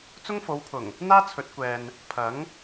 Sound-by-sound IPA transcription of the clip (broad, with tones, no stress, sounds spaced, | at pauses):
t͡s ʊ˥ ŋ f o˨˧ w pʰ ʊ˨˩ ŋ | n̪ aː˥ t͡sʰ ɵ˨˥ t̚ kʷ ɛː˨ n | pʰ ɐ˨˥ ŋ